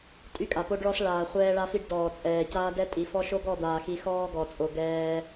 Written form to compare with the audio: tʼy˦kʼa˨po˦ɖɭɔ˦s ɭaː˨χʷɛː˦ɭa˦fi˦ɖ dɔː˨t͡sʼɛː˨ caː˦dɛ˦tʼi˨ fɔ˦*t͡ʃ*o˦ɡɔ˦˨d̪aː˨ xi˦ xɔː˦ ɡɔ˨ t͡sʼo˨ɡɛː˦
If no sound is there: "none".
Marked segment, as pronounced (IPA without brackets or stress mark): ʃ